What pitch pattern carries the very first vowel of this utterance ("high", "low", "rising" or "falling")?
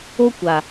high